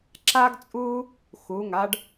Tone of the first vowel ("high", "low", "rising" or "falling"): high